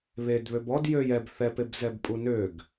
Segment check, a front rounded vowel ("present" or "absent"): present